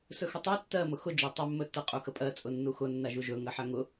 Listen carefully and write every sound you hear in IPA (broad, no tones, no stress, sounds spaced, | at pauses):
s ɵ x ɵ tˤ ɜ tː ɜ m ʊ x ʊ d͡ʒ ʊ tˤ ʊ mː ɵ tː ə qʼ u x ə pʼ ɜ t͡sʼ ʊ nː u x ʊ nː a ʒ u ʒ ɵ ŋ ɜ ħ a ŋ ʊ